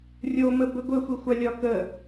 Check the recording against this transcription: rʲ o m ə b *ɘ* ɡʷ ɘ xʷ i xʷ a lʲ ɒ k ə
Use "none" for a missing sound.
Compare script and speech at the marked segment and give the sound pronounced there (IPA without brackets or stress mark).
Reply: ɘ